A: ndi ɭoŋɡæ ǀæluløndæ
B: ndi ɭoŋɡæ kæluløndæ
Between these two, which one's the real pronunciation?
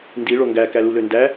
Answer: B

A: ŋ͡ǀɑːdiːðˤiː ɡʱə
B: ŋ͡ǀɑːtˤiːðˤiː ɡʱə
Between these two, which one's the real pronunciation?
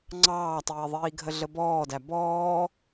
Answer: B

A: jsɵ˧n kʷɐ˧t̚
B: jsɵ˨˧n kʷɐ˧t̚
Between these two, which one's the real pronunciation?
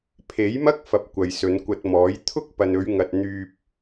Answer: B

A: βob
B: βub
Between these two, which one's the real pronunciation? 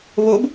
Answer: A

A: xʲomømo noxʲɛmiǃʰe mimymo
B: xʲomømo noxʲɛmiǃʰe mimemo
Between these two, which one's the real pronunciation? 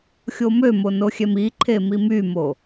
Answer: A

